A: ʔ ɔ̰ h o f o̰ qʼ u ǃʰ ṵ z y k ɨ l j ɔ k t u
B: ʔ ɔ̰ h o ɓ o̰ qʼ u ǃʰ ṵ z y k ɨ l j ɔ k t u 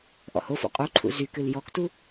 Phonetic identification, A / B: A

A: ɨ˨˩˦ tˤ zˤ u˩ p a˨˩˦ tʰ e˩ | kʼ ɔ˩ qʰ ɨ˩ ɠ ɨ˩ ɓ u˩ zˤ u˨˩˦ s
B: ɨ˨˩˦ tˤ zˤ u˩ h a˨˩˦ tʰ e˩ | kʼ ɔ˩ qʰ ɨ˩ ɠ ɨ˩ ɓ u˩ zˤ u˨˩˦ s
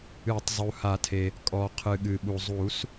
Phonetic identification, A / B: B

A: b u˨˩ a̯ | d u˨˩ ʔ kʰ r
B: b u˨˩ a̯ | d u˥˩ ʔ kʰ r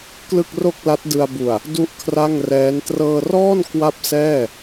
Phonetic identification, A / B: B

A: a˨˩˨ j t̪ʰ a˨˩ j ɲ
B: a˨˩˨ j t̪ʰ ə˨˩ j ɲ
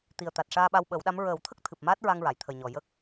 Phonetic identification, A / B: B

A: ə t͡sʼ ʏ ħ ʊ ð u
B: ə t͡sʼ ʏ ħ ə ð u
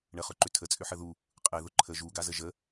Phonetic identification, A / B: B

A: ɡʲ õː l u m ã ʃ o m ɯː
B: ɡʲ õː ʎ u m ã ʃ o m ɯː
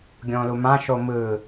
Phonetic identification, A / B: A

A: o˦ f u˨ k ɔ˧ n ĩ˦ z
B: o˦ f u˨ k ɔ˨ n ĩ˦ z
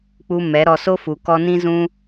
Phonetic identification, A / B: A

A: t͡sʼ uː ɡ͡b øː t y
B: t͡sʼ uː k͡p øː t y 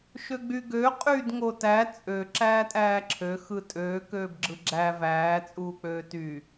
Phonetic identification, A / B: B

